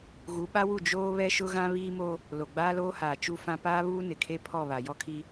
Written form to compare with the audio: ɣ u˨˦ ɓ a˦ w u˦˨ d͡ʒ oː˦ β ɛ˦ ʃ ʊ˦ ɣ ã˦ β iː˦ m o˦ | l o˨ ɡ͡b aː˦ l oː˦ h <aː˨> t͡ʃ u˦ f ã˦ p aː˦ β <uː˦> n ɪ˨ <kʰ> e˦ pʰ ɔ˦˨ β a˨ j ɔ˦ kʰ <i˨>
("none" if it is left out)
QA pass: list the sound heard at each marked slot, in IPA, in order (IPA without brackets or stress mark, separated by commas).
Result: aː˨, uː˦, kʰ, i˦